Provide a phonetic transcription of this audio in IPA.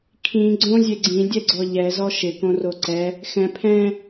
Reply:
kʰĩ ɡ͡ǀõzʲe ɡ͡ǀĩdʲɛɡ͡ǀɔ ʎɛzɔ ʃɪkõro ǀɛ | xɛ̃ pʰɛ̃

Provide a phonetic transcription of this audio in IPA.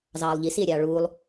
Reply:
zɑːlˠʎisie̯ɾʲɑː ɭuːlˠ

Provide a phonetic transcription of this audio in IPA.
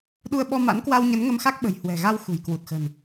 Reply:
ɗu˧ə̯ɓɔ˧ ma̰˧˥nkwa˧w ɲə˨˦nŋə˧mxa˦˥k̚ɓə̤˨˩j hwɛ̤˨˩ɣa˧w xṳ˨˩jkwu˨˩t̚xə̤˨˩n

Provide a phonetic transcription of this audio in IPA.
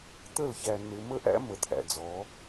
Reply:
t̪ə˦˨lçæ˨ nɪ˨mə˦ʔæ̰˦ mə˨t̪ʰæ̰˨d͡zɔ˨˦

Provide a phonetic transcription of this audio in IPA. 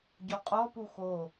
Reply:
ɟɔqʼɔpu xo

